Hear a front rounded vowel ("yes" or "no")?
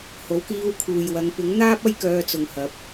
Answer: yes